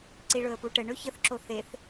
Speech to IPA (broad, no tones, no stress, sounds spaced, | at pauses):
ǀ i ɭ ɵ ə̯ p u ʈ ə ɳ ɵ ç ə θ ǁ o θ e θ